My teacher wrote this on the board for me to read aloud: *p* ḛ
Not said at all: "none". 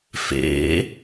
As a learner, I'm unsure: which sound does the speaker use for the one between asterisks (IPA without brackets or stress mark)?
f